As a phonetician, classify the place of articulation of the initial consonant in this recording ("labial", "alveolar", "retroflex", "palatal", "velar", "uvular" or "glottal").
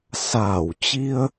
alveolar